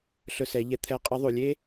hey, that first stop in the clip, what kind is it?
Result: aspirated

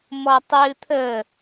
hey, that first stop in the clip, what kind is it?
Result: plain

